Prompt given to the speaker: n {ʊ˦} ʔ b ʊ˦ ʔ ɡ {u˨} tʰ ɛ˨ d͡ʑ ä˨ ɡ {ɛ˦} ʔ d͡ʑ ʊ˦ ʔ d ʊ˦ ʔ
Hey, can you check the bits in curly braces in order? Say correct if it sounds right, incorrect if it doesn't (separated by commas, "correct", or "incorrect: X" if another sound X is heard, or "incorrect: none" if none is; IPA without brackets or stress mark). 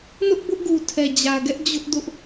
correct, correct, correct